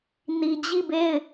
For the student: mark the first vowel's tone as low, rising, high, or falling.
low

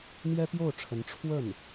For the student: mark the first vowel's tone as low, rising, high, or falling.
high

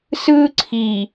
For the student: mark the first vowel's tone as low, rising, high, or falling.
high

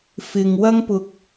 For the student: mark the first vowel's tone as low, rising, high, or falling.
low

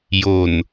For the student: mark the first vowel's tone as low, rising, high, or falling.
low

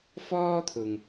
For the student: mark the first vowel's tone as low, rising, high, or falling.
high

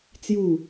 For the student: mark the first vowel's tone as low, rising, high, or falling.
falling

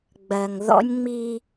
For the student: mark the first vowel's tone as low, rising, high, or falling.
low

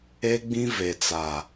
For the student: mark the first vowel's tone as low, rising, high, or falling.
high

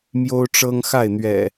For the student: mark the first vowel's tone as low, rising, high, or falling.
high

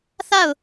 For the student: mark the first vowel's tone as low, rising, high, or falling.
falling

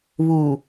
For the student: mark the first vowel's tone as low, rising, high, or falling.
low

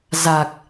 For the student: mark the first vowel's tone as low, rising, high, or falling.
low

